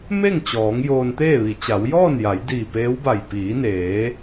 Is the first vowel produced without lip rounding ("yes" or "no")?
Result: yes